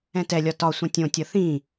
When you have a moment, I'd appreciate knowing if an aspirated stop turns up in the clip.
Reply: no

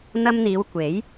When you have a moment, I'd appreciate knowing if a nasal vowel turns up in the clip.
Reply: no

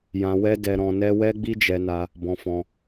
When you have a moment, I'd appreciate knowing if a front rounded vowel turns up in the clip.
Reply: no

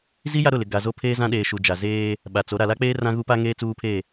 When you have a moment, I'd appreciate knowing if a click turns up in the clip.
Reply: no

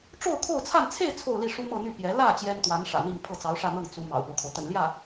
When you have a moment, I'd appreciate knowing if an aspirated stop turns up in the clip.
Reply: yes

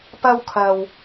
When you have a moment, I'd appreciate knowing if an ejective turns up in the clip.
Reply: no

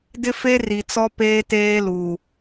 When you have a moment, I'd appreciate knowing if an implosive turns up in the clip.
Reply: no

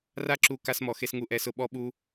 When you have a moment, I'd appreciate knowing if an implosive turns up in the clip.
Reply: yes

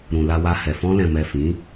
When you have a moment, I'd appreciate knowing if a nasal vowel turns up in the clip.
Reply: yes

